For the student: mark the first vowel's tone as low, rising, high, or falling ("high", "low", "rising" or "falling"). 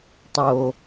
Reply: low